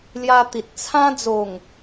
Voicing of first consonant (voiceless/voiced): voiced